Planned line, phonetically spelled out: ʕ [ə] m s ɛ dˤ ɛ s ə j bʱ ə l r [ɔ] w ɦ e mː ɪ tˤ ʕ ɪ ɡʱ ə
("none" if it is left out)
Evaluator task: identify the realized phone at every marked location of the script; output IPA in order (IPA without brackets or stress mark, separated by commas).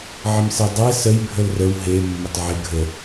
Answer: ə, ə